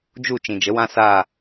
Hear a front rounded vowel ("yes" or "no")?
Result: no